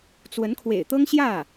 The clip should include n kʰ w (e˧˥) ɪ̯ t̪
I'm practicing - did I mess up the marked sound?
yes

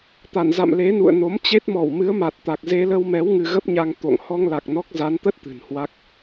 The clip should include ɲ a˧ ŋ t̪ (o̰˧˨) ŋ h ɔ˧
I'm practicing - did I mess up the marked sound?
no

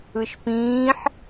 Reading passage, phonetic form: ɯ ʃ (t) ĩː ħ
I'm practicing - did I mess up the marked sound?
yes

